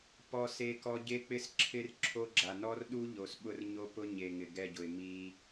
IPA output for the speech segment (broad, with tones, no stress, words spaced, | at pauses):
pɔ˦se˦kɔ˦ ɟe˦k͡pɪ˦s ǁʰɪ˦r ǁʰo˦ɡ͡ǁa˨ nɔ˦rɗu˦ ʎo˨sɓʊ˦r ɲo˦pʊ˦ɲe˨ ŋɪ˨ɡɛ˦˨ɟʊ˨ɪ̯ mi˦